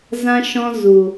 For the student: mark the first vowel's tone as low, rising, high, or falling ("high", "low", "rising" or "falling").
high